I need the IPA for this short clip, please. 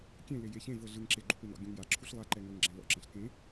kʲ ẽ l e j e ç ẽ v ɤ ɮ ɯ ŋ ǁ e ɡ͡ǃ u p e n ɔ̰ ɡʲ ũ ŋ j a ǁʰ u ɬ lˠ a ǃ ɛ ŋ ɤ ŋ ɡ͡ǁ ɛ̃ l ɔ̰ ǁ ɛ̃ ɬ k ẽ

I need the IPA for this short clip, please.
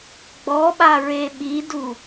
ɡ͡b ɔ ɓ a ɹ e ɓ i d u

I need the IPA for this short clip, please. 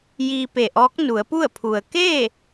j iː˧ p e˧˩ ʔ ɔː˧˥ k̚ n u˩˧ ə̯ p u˥˨ ə̯ pʰ u˩ ə̯ k eː˥˨

